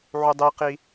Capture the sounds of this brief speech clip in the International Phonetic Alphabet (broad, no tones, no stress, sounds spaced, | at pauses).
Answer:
ʕ u dˤ i q i